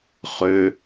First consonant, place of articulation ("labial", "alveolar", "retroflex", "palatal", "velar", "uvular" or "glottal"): uvular